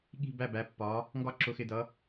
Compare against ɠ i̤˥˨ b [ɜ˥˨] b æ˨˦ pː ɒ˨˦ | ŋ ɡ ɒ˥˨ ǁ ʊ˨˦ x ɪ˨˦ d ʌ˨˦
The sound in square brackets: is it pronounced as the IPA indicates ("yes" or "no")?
no